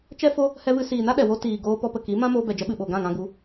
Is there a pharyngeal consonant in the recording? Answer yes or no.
no